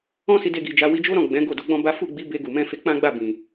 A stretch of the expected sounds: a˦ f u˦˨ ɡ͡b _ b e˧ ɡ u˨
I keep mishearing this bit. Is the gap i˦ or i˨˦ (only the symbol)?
i˨˦